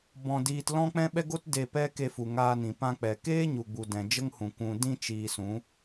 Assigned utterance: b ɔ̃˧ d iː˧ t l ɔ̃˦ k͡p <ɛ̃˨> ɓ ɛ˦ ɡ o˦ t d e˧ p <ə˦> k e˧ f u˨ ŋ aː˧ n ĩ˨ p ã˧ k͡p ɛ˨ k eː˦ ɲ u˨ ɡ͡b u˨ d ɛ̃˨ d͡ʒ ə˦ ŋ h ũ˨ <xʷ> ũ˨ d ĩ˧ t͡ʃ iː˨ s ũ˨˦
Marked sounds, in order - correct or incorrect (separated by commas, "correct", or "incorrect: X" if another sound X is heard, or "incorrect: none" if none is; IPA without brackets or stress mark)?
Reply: incorrect: ɛ̃˦, incorrect: ɛ˦, incorrect: kʷ